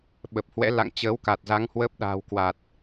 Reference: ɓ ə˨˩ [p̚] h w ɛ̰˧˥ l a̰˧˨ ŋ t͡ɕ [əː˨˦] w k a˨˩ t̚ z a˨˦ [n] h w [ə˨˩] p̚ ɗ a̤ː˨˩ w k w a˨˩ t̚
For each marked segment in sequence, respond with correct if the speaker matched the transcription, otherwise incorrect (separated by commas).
correct, correct, incorrect, incorrect